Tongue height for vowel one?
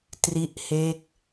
high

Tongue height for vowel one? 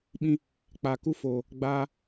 high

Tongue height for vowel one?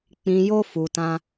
high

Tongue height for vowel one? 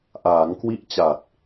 low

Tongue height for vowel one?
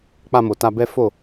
low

